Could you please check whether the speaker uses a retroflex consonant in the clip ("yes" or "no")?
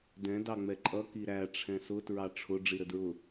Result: yes